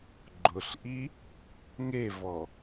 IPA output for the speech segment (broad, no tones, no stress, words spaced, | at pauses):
ɡ͡ǃʊɬʔi | ŋevɔ